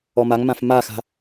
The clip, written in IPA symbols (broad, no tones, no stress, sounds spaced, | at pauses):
ɔ m a ŋ m ã f m a x a̤